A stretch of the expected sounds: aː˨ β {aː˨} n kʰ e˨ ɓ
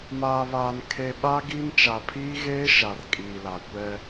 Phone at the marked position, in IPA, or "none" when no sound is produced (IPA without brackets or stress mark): aː˨